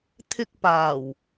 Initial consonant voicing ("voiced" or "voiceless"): voiceless